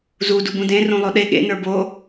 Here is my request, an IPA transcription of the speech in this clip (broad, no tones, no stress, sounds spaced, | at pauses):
z u d u b ũ d ẽ r ũ lˠ o ɗ e ɠ ḛ n ə˞ b o